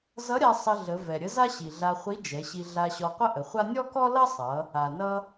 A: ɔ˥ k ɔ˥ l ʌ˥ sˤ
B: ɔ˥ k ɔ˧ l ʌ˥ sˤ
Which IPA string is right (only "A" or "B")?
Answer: A